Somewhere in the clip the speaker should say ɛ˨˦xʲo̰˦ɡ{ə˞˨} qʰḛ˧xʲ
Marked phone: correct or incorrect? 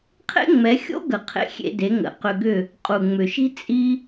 incorrect